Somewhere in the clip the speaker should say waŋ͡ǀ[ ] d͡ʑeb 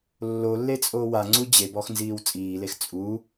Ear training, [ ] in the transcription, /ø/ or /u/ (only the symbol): u